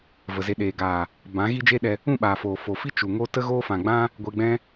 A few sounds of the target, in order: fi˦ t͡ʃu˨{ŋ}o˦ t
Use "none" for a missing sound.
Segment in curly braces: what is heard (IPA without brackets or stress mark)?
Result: ŋ